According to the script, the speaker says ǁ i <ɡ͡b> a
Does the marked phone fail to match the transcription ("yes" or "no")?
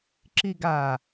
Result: yes